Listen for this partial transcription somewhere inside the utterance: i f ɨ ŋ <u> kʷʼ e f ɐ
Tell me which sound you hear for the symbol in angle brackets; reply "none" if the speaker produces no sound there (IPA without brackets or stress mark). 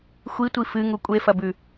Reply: u